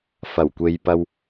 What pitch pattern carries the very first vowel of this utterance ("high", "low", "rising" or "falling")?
low